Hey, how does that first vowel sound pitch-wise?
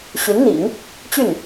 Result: rising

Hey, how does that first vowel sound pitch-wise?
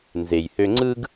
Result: low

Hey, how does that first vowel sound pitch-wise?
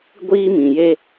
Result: high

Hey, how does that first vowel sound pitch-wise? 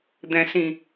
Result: low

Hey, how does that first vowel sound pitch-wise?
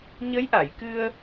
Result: rising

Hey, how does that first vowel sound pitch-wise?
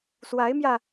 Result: rising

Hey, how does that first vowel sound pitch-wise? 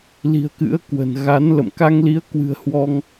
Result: low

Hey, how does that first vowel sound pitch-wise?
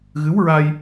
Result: rising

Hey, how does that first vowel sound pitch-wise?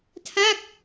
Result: falling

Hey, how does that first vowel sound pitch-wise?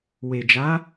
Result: low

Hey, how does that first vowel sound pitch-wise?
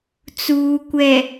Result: low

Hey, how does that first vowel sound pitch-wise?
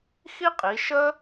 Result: high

